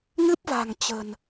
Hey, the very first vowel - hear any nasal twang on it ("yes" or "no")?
no